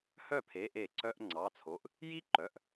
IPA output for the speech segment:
h œ˥˩ pʰ e˩˧˩ ʔ e˧˩˧ ǀ œ˧˥˧ ʔ ŋ͡ǀ ɑ˩˧˩ t͡sʰ o˩˧˩ ʔ | j i˥ ǃ œ˩˧˩ ʔ

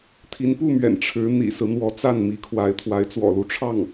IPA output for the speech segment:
t̪ʰ i˧˥ n p u˥˩ m ɥ ɛ̰˨˩ n ʈ͡ʂʰ ɻ̩˧˥ n̪ ḭ˨˩ s ɹ̩˦ n̪ w ɔ˧˥ t͡s a˥˩ n m i˧˥ kʰ w a˧˥ ɪ̯ t̪ʰ w a˧˥ ɪ̯ t͡s w ɔ̰˨˩ l u˥˧ ʈ͡ʂʰ ɑ˥˩ ŋ

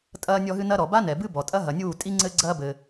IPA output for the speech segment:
tʼ ɐː˧ nʲ ɔ˧ ɦ ɨ˧ n ɐ˦ ɾ ɔ˨ b a˦ n ɛ˨ b ɨ˦ b ɔ˨ tʼ ɐ˦ ɦ ɐ˨ nʲ uː˦˨ tʼ i˦ ŋ͡ǀ ɘ˦ ɡ͡ǀ ɐː˦ b ɘ˧

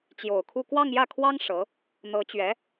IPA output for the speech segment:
t͡ɕ j o˨˩ ʊ̯ kʰ u˥˧ k w ɑ˥˧ ŋ j ä˥˩ kʰ w ɑ˥ ŋ ʂ ɤ˧˥ | n̪ ɤ˧˥ t͡ɕ ɥ ɛ˧˥

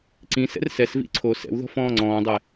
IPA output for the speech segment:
ǀ ĩ s ɛ̰ r s ɛ s v ḭ ǀʰ o s ɛ̰ w ð ɔ̤ f ɔ̃ː ŋ͡ǀ ɔ̃ː dˤ ɛ

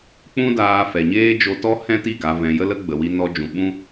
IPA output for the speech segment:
k͡p ũ˦ d aː˧ f ɛ˨ ɲ eː˦ d͡ʒ o˧ t ɔ˦ h ɛ̃˦ t i˦˨ ɡ a˨ v ɛ̃˨ j ə˧ l ə˧ ɡ͡b ə˨ w i˧ n ɔ˧ d͡ʒ ũ˨ ɓ ũ˦

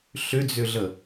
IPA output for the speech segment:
ɬ ʏ d͡z ʏ ɮ ə

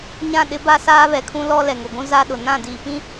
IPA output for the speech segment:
ɲ ã˦˨ ɗ ɪ˦ b a˦ s aː˦ β ɛ˨ kʰ ũ˦ l ɔ˦ l ɛ˨ ŋ ʊ˨ ɡʷ ũ˦ z a˦ ɗ ʊ˨ n ã˦˨ d iː˨ p ĩ˦

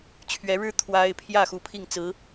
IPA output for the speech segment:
t͡ɕʰ ɥ ɛ˧˥ ɻ ɻ̩˥ t̪ʰ w a˥ ɪ̯ pʰ j ä˥˩ x u˧˥ pʰ i˥˩ ŋ t͡s ɹ̩˧˥

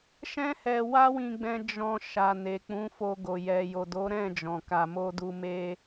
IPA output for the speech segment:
ʃ ɛ̃˦ h ɛ˧ w a˦ w ĩ˧ ɡ͡b ɛ̃˧ d͡ʒ ɔ̃˧ ʃ a˨ n e˨ k͡p ũ˨˦ f o˧ ɡ o˨ j ɛ˨ j o˨ d o˨˦ ɾ ɛ̃˦˨ d͡ʒ ɔ̃˨ k a˨ m o˧ d u˧ m e˧

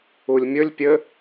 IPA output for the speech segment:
u lʲ mʲ ɵ lʲ pʲ ɘ

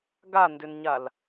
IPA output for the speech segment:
ɡ a n d ʏ n ɲ a l

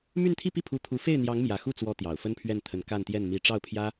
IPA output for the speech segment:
m y˥˧ n t̪ʰ i˥˧ p i˥˩ pʰ u˧˥ t̪ʰ u˧˥ f e˥˩ ɪ̯ n̪ j ɑ˧˥ ŋ m j ä˨˩ x u˥˩ t͡s w ɔ˧˥ t̪ j ɑ˨˩ ʊ̯ f ə˥ n pʰ ɥ ɛ˥˩ n t̪ʰ ə˧˥ n k a˥˧ n t̪ j ɛ˥˩ n m i˧˥ ʈ͡ʂ ɑ˥˩ ʊ̯ pʰ j ä˥

